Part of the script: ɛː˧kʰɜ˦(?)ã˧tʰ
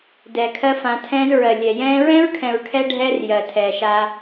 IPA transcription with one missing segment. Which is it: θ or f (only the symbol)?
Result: f